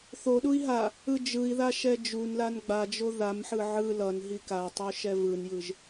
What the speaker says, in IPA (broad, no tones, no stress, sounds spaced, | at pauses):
θ o ɗ u i̯ ɦ a | ɯ d͡ʒ ɯ i̯ ð a ʃ ɛ d͡ʒ u n l a n ɡ͡b a d͡ʒ o ð a m ħ ɯ ʕ ɯ l ʌ n ɦ i k a tˤ u ʃ ɛ v ɯ n j ɯ ʒ